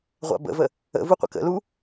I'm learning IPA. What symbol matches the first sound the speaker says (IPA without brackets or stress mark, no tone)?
ʁʷ